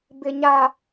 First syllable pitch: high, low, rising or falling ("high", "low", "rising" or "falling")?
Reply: low